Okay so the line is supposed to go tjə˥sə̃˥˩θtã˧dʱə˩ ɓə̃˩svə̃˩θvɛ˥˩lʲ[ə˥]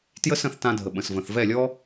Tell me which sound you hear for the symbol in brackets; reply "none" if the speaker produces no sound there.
ɔ˥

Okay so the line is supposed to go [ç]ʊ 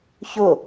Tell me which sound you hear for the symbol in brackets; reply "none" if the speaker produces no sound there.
ç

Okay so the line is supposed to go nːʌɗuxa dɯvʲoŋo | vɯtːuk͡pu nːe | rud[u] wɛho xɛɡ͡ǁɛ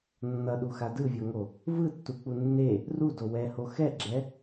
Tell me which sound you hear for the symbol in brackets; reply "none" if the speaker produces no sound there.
o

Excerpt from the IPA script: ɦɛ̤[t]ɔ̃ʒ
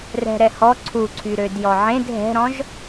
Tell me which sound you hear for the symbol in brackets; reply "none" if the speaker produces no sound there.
ɾ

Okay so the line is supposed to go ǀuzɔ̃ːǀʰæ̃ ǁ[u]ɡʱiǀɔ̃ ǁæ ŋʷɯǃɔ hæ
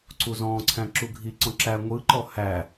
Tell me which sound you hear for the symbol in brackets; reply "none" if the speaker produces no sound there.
u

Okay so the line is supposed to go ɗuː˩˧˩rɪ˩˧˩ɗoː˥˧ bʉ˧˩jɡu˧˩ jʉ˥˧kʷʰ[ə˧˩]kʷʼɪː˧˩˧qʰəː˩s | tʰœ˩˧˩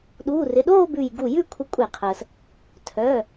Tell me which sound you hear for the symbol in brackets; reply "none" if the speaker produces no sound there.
ə˧˩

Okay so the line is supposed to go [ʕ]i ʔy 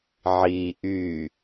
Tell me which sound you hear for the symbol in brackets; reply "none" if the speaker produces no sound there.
ʕ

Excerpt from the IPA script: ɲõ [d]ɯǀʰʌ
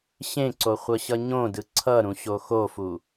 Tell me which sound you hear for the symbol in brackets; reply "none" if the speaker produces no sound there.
d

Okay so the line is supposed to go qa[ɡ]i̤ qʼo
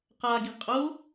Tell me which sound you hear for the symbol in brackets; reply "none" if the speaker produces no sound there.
ɡ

